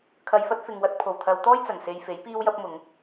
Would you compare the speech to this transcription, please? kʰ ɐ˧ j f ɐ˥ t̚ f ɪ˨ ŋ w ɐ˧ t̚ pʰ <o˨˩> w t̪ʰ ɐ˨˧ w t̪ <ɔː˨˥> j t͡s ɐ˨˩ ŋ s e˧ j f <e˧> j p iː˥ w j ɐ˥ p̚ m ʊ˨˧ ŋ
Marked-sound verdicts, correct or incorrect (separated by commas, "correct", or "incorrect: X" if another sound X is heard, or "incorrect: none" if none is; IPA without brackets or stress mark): correct, incorrect: ɔː˥, incorrect: e˨˥